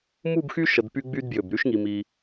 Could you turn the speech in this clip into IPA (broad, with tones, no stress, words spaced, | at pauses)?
mu˥˧bxy˥ ʃə˧dpy˥ɡ͡by˥dbjʏ˧˩b ɾy˥ʃŋi˧mi˧